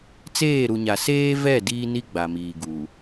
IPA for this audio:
t͡s eː˦˨ ɾ u˨ ɲ a˨ s eː˦ v ɛ˦˨ d iː˦ n i˦ ɡ͡b a˨ m iː˨ ɡ uː˨

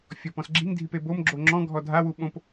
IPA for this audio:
fʲ ɔ p ɔ̃ s ɡ͡ǁ i ŋ dʱ i p e b o m ɡ͡ǁ o ŋ͡ǁ ɔ̃ ɡʱ ɔ dʱ a w u ɓ õ p

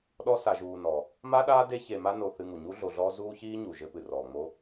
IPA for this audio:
ɗ ɔ˦ s a˨ ʒ uː˨ n ɔ˩ | m a˦ ɗ aː˦ d e˦ ç e˨ m a˦ n o˨ θ ɨ˨ ŋ u˩ ɲ u˦ ɮ o˨ ɮ ɔː˦ z uː˦ ç iː˦ ɲ u˩ ʒ ɘ˦ p ɨ˩ r ɔː˩ ŋ͡m o˦

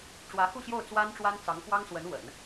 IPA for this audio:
ʈ͡ʂ w ä˧˥ x u˥˧ ɕ j o˥˩ ʊ̯ t͡s w a˥ n ʈ͡ʂ w a˥ n t͡s ɑ˧˥ ŋ k w ɑ˥ ŋ s w ə˧˥ n w ə̰˨˩˦ n

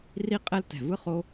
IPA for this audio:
r i˥ qʼ ɛ˥ l t ɛ̤˧˩ v ɯ˥ χ o˥

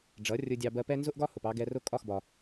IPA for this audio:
ɖ͡ʐ ʌ˩˥ rʲ ʊ˧ dʲ ɑ˧ b ɜ˧ p ɛ˥ n z ʊ˥ ʔ ɡ ɒ˥ h ʊ˩ p ɑ˧ ɡ ɛ˧ r ʊ˥˩ kʼ ɒ˥˩ x b ɒ˩

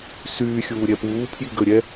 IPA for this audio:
s yː xʲ uː ɾʲ ɛ p uː pʰ j i ɡ ə ɾʲ ɛ

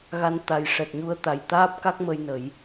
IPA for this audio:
ɣ a˧ n t̪ a˨˩ j ʂ ɛ˨˩ t̚ ɲ u˧ ə̯ t̪ a˨˩ j t̪ aː˦˥ p̚ k a˦˥ k̚ m ə˧ j n ə˨˩˦ j

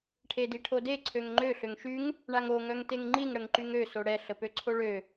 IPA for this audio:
ʈʰ e d i ʈʰ o d e ǀʰ ø ŋ ŋ͡ǃ ø ɬ ø ŋ ʃ y ŋ | ɳ a ŋ o ŋ œ ŋ t e ŋ ŋ͡ǃ i ŋ ɽ ə ŋ ǃ y ŋ ø s o ɽ ɛ ɬ ə p ø ǀʰ o ɭ ø

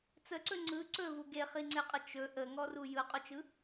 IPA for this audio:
t͡s ə ǀ ɵ ŋ͡ǀ ɯ ǀ ɵ v u ɡ e χ i ŋ͡ǀ e qʼ ə t͡ʃ ɵ ʔ ə ŋ ɔ r u j ɯ qʼ ɵ t͡ʃ ɯ

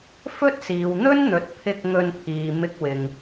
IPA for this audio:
f ɵ˥ t̚ s iː˨ w n̪ ɵ˥ n n̪ ɵ˨ t̚ pʰ ɪ˧ k̚ ŋ ɵ˧ n pʰ iː˨ m ɪ˥ k̚ w ɪ˧ ŋ

